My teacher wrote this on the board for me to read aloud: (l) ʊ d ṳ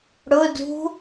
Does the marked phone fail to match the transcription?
yes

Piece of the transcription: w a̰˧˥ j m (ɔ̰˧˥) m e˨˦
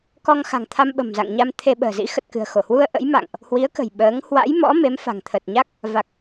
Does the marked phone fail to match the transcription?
no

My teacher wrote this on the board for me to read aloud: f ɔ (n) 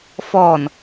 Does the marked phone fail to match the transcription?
no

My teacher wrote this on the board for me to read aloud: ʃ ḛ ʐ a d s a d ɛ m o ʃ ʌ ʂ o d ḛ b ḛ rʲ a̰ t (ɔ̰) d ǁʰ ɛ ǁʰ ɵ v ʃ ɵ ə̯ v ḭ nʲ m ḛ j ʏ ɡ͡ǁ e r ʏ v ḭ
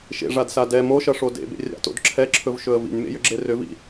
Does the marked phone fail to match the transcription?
yes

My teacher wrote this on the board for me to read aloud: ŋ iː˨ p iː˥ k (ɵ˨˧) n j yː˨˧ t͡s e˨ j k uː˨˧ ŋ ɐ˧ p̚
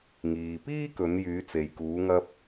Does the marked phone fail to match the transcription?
no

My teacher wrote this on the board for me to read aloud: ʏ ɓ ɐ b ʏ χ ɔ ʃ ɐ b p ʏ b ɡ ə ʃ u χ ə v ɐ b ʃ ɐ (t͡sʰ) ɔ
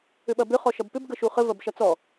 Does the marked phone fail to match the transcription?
yes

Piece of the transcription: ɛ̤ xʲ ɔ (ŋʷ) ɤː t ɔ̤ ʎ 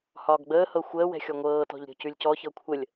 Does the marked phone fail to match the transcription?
no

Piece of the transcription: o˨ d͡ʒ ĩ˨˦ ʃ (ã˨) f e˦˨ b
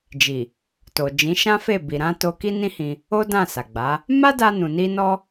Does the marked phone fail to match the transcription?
yes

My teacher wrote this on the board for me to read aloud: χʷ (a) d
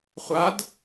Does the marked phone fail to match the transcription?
no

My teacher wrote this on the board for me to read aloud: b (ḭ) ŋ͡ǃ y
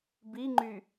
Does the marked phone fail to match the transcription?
yes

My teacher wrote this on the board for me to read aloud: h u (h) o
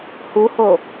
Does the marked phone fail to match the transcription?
no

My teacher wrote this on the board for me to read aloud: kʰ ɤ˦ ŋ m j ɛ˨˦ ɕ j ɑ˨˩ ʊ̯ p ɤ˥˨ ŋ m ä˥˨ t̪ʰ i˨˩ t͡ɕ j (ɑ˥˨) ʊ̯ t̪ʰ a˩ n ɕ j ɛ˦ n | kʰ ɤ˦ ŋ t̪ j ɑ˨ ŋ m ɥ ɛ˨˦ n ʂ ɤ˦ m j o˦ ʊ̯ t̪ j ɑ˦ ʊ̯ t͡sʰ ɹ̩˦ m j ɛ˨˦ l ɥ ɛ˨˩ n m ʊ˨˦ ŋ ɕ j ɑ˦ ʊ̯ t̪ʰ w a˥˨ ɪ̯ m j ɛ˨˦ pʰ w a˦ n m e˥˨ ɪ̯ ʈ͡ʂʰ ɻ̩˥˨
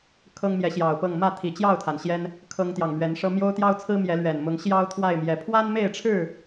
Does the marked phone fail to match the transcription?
no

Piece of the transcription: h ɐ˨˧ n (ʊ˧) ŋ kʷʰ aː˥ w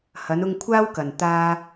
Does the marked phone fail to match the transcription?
no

